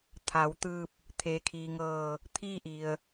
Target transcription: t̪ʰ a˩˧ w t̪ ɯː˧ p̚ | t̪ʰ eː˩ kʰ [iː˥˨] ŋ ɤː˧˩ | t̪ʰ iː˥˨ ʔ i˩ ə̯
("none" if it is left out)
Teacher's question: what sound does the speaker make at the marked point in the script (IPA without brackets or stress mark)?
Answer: iː˩